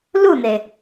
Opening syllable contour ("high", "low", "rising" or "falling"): falling